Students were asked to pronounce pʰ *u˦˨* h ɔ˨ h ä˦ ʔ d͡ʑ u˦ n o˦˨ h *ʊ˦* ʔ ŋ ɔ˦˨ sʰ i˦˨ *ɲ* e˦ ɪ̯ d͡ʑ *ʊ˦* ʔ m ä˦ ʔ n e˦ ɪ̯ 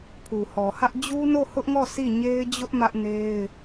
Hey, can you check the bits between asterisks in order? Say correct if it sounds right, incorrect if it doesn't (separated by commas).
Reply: incorrect, correct, correct, correct